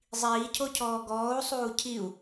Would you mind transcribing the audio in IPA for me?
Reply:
zˤ iː cʰ o cʰ ɔː ɡ ɔː u̯ sˤ uː cʰ i u̯

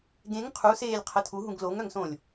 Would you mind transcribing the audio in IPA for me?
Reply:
ɡ ẽ ŋ qʰ u s eː lʲ qʰ ə tʰ u ɦ ũ ɡ l o ŋ œ ŋ s õ lʲ

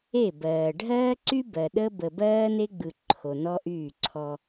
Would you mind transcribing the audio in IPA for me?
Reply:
e˦˨ b ɜː˨ ɖʱ ɜː˦ ǀ y˦ b ɜ˨ ɗ ə˦ b ə˨ b ɜː˦ n e˦ ɡ͡b ɯ˨ ǃʰ o˨ n ɔ˦ ʔ yː˦˨ ǀʰ ɔ˦

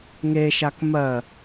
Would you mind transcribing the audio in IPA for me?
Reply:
ŋ e ʃ a k m ɜ

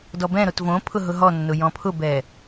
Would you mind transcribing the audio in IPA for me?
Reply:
d ɔ b ɛ̃ ɾ o t v õ pʰ ʊ ɦ ʊ ɦ ɔ nː ʊ j ɔ̃ pʰ ʊ b ɛ

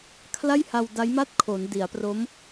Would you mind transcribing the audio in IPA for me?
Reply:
kʰ l a˥˩ j h a˧ w d a˦˥ j m a˥˩ t̚ kʰ o˩˦ n d i˩˦ a̯ p r o˦˥ m

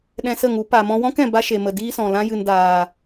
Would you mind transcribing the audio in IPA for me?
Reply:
ɗ ɛ̃˧ s ə˦˨ ŋ u˨˦ p a˨ m ɔ̃˧ w ɔ̃˦ k ɛ̃˨ b a˦ ʃ e˨ m ə˨ d iː˦ s ɔ̃˨ l ã˦ j ɨ˨ n d aː˨

